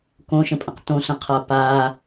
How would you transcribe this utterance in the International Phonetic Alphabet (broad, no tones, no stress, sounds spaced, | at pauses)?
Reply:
k õ ʃ ə̃ pʼ ə̃ q t õ ɬ ə̃ qʰ a p a